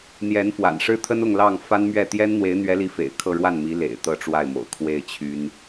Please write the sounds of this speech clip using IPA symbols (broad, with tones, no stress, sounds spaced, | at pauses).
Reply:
n̪ j ɛ˧˥ n f w a̰˨˩ n ʂ ɻ̩˥ t̪ʰ ə˥ n ʊ˥˧ ŋ l ɑ˥˩ ŋ f a˥ n m ɥ ɛ˥˩ t̪ j ɛ˥ n n̪ w e˧˥ ɪ̯ n̪ ɥ ɛ˧˥ l i˧˥ f ḛ˨˩ ɪ̯ kʰ ɤ˥˧ ɻ w a˥˩ n m i˧˥ l ḛ˨˩ ɪ̯ t̪ ɤ˥˧ ʈ͡ʂ w a˥˩ ɪ̯ m o̰˨˩ ʊ̯ kʰ w e˥˩ ɪ̯ t͡ɕʰ y˥ n